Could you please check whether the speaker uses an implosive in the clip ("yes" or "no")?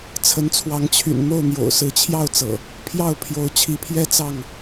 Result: no